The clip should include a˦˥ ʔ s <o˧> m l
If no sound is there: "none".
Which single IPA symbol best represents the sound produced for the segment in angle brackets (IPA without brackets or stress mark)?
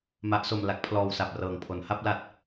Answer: o˧